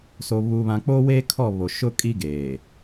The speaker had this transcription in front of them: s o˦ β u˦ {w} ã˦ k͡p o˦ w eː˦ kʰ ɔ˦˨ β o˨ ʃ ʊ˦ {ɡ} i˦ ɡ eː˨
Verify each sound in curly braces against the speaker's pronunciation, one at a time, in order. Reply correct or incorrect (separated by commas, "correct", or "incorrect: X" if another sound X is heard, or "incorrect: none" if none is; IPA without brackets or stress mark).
incorrect: β, incorrect: kʼ